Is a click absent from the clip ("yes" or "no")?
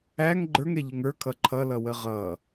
no